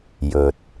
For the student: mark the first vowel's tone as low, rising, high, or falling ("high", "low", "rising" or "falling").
low